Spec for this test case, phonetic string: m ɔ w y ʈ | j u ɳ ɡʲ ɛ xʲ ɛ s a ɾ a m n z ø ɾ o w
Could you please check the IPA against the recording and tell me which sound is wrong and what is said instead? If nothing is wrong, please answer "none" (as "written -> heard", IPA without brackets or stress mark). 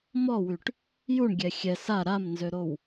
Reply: none